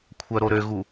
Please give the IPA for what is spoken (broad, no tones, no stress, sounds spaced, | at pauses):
kʷʰ œ ɾ o ɾ ø ɣ u